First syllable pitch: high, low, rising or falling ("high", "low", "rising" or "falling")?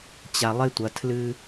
low